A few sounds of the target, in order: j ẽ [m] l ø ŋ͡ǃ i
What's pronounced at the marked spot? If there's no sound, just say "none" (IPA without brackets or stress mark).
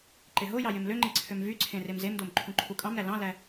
m